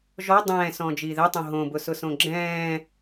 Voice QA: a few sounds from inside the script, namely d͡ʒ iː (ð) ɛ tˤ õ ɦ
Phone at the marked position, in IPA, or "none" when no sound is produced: ð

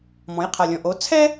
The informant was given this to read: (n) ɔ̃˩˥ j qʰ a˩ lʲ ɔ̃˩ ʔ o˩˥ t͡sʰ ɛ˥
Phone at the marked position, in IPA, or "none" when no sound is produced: m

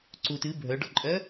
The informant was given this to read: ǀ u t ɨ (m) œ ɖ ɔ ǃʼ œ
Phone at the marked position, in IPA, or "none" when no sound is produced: bʱ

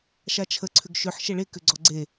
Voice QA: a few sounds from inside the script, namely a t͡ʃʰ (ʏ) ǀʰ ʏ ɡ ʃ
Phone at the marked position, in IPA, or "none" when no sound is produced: ə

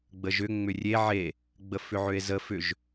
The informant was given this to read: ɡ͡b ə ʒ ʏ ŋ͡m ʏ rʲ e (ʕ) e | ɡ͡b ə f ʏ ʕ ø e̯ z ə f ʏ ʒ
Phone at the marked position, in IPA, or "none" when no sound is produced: ʕ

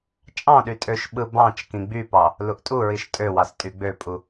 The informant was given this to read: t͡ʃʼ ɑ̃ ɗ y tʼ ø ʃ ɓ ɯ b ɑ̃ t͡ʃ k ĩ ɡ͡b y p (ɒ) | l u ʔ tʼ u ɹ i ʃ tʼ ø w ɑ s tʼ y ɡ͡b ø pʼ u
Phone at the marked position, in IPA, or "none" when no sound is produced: ɑ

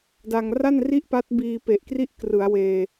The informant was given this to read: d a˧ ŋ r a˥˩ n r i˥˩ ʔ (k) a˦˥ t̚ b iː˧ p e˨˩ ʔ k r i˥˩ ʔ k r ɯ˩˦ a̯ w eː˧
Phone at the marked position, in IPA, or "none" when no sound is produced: p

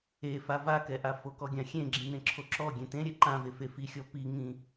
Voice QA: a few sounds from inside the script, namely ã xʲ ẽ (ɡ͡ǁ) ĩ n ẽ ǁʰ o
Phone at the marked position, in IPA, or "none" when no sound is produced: ɡ͡ǁ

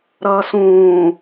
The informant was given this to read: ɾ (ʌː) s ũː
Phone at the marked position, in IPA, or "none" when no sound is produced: ʌː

